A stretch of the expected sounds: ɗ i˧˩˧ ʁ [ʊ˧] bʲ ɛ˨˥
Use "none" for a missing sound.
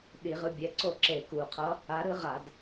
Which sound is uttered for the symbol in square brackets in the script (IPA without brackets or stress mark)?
ɯ˧